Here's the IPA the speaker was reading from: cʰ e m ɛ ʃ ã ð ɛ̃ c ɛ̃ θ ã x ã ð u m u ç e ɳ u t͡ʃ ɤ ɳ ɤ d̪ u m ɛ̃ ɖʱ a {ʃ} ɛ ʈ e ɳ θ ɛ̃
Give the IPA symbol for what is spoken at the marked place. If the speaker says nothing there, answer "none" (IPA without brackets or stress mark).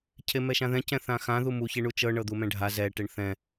z